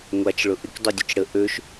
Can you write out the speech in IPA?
ŋʷat͡ʃ ɭʊʔɪk dˤudʲʊt͡ʃɽə ʔøʃ

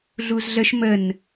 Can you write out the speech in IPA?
ɮuzɮəʃ mən

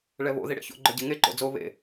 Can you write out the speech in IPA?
ɭɛβo̰ ðiɽḛço̰ ɡ͡ǃœɟeŋe ǃo̰d͡zo βḛ

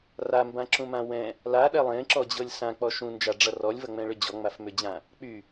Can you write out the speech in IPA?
rambãǁũmã wɛ̃ | laɗɛ lˠẽǁɔd͡ʑɤlʲ sãk͡pɔ ʃũnd͡ʒaɖ͡ʐʌ rɔlʲvʌŋ͡mɛ̃ɭʏ d͡ʑɔŋ͡mafmʏd͡ʑã | k͡py

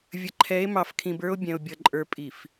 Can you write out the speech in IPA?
vʲə˨ǃʰɛ˨˦e̯mɑ˨fkʰĩ˨b ə˞˦o̯bʲɛ̃˨o̯bʲʌ˨ǃʼə˞˨ pʼi˨f

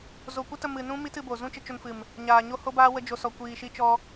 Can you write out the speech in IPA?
zo˨kʷə˦tə˧ mɨ˨nũ˦ mi˦tɨ˧bo˨ zũ˦t͡ʃə˧t͡ʃo˧nfɨ˨m | ɲaː˨ɲo˦ho˦baː˦ wə˦d͡ʒo˧ sɔ˧kʷiː˧ʃi˦ t͡ʃɔ˦

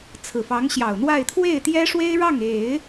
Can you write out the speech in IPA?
t͡sʰɹ̩˨˩fɑ˧˥ŋɕjɑ˨˩ʊ̯n̪wa˥˧ɪ̯ t̪ʰwe˥˩ɪ̯t̪jɛ˥ʂwe˥ɪ̯ ɻɑ˥˩ŋe˨˩˦ɪ̯

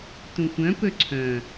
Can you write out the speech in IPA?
tũxʷœ̃ pɵǀʰœ̃

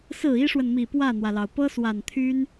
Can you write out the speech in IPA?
sɹ̩˨˩ i˥ʂwə˨nmi˨˩ pwä˥˩n̪wä˩lɑ˩ʊ̯ pɤ˥swa˨˩nt̪ʰy˥n

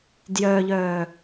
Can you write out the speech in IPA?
djœʎœː

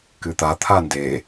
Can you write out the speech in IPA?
kɨt̪at̪ʰa nde

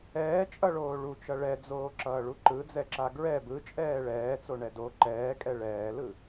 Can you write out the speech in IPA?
ɛːt͡ʃʼʌɭoː ɭut͡ʃʌ ɭɛd͡zoːǁʌːɭu ǃɯd͡zɛǁa ɡɹɛ bɯt͡ʃʼɛː ɭɛːt͡soɳɛ do ǃɛːkʼɛ ɭɛːlɯ

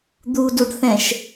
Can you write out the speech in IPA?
d̪uduɖθɛ̃ʃ

